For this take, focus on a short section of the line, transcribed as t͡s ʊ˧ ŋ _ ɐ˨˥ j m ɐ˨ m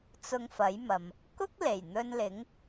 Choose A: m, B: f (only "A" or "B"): B